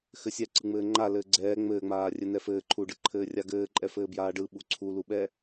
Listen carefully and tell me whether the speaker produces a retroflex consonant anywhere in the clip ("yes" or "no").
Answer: yes